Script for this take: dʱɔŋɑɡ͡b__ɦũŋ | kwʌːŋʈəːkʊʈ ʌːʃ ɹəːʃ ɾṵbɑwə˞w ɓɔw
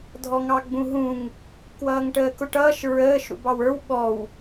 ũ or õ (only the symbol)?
ũ